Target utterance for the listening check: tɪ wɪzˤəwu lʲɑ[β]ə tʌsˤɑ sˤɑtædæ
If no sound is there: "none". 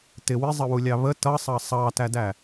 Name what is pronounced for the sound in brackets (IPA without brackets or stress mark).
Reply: β